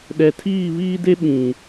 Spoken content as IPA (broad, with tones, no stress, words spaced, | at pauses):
ɗɛ˨tʰiː˦˨βiː˦de˦ ɓĩ˨